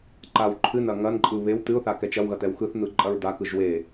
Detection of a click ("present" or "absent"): present